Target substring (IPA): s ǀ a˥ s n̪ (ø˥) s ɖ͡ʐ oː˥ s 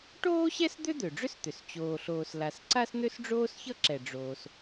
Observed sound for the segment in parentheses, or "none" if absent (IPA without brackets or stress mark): ø˥